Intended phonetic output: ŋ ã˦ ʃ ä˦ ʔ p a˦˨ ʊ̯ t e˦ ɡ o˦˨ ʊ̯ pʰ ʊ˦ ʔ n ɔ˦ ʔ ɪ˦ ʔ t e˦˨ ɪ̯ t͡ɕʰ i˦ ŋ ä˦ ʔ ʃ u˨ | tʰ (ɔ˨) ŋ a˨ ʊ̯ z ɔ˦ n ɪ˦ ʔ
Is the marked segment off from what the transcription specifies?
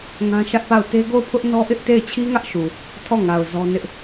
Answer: yes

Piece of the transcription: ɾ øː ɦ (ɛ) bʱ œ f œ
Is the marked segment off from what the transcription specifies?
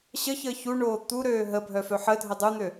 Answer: yes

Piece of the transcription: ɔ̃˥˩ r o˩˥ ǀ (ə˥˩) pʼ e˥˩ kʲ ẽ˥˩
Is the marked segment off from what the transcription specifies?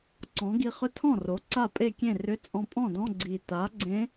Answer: yes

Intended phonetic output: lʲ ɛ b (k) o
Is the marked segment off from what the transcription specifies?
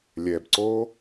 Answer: yes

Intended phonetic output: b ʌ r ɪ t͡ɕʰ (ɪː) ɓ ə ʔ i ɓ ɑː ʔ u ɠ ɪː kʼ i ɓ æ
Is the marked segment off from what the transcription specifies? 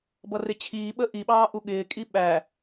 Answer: yes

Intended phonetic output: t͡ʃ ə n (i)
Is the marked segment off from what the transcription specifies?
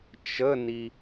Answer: no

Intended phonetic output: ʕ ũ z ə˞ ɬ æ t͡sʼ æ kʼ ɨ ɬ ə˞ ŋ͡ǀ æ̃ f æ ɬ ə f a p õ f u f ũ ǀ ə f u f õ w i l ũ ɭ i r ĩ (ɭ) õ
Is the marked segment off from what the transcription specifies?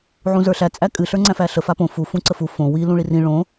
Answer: no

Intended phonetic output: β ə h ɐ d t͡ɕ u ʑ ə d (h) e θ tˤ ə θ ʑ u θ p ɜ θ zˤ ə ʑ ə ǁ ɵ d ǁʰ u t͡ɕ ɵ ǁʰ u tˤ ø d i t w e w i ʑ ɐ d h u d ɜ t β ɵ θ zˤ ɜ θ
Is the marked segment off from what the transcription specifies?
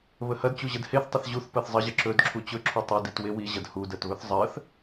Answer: no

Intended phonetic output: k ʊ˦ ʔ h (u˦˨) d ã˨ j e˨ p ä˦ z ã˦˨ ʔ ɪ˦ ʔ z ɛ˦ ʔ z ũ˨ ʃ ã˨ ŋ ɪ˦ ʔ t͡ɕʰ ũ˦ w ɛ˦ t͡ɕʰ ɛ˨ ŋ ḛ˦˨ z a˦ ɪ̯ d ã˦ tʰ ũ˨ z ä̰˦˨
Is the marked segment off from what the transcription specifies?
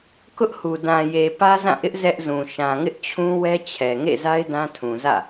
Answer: yes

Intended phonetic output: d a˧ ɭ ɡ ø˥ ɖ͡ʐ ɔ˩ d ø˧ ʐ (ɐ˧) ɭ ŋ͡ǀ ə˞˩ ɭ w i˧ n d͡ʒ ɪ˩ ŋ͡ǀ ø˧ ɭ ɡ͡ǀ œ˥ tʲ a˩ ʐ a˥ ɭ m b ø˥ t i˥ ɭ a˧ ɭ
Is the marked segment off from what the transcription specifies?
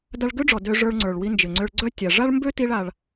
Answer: yes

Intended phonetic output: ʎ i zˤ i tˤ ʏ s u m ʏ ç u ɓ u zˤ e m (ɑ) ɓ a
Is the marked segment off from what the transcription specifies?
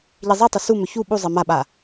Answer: yes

